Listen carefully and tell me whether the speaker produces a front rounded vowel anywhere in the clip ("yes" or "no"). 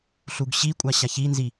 no